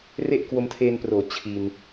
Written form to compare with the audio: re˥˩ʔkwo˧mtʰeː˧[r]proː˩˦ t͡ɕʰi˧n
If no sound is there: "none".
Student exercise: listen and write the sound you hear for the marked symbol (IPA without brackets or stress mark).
n